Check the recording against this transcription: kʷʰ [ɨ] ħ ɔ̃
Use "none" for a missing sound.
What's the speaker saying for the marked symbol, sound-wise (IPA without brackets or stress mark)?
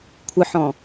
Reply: ɨ